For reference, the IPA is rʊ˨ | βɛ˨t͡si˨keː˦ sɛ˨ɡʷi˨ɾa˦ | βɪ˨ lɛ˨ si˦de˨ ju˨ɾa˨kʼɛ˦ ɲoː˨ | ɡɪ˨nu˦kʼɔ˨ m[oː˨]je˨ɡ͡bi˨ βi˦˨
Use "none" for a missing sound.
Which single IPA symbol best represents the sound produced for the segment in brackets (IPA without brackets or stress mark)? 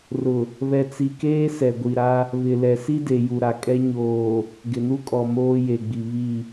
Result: oː˦